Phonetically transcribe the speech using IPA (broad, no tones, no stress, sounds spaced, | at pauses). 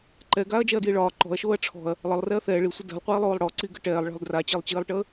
ǃ ɛ ɡ aː ɐ̯ d͡ʒ ɛ ɐ̯ d j i ɭ ɒː ǃ ɔ̤ ɐ̯ ʃ oː ɐ̯ ʈ͡ʂʰ ɔ̤ ɐ̯ | lˠ ə lˠ r ɛ ɐ̯ θ ɛː ɭ i sʷ ə d ɛ̤ lˠ qʷ iː lˠ oː lˠ ɽ ɔ ǀ i ɡ ə ʈ ɛː lˠ ɭ ɛ̤ lˠ d r a t͡ɕ i lˠ t͡ɕ iː lˠ ʈ əː